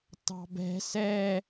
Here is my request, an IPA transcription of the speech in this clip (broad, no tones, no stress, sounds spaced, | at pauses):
t ɑ̤ b ɛ̤ s ɛ